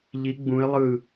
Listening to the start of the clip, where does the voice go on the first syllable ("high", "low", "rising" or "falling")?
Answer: rising